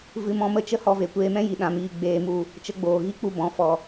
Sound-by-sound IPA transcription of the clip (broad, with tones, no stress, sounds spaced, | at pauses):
v ɨ˧ m ɔ̃˧ m ə˦ t͡ʃ ə˦ h ɔ˧ v e˨ kʷ eː˧ m ɛ̃˦ j i˨ ɗ ã˧ m iː˧ ɡ͡b eː˧ m u˧ | t͡ʃ ə˧ ɡ͡b oː˨ ɣ i˦ k͡p u˧ b ɔ̃˨˦ f ɔ˧